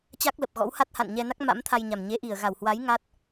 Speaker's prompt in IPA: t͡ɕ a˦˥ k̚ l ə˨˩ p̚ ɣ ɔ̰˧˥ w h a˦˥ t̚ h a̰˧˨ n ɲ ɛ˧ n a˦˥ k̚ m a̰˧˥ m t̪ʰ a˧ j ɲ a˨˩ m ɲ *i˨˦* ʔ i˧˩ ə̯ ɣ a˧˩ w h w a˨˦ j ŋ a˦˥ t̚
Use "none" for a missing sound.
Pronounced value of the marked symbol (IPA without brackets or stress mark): e˨˦